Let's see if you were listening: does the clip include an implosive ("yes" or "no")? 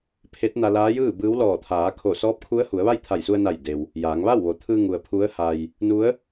no